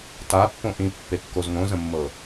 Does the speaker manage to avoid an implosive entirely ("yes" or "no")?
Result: yes